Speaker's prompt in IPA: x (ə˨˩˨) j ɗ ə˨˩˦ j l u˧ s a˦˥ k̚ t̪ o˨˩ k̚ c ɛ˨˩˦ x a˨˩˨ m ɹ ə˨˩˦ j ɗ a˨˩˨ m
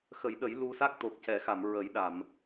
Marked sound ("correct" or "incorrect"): incorrect